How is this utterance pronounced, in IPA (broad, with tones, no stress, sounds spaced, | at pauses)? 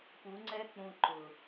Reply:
p u˨˦ ŋ͡ǀ ɛ˦ k͡p ũ˧ ǃ ʊ˨